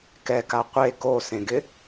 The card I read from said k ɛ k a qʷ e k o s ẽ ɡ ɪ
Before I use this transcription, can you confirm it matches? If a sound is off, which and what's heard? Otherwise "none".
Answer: none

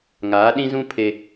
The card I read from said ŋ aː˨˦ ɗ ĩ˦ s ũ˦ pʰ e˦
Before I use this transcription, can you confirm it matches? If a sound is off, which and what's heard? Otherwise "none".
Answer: s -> z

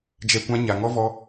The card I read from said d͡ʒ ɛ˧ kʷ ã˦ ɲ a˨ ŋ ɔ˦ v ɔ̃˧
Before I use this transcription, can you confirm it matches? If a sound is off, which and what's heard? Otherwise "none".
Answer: ɔ̃˧ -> ɔ˧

